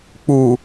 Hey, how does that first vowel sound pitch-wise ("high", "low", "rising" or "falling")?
low